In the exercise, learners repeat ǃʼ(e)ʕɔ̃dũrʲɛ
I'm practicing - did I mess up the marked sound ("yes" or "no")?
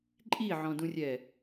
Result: yes